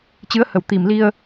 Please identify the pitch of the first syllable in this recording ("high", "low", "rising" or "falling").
rising